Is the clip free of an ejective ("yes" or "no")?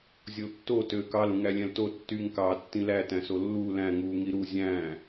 yes